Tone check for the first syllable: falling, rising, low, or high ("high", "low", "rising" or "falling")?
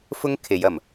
high